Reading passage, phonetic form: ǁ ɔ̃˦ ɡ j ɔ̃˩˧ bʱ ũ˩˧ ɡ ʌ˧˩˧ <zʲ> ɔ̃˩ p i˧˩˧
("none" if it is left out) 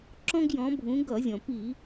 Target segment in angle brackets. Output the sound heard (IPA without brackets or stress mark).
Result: zʲ